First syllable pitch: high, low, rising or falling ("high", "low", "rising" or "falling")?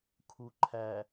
low